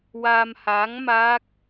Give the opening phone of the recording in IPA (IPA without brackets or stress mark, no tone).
w